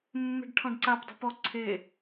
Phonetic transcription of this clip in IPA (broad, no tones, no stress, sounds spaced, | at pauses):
mː e̤ ɖ ʈʰ ɔ̃ ɖ ǀ a p dˤ e̤ p ɔ ǀʰ e